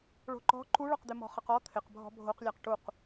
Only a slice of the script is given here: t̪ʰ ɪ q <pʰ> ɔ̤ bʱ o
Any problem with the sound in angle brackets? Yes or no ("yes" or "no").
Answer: yes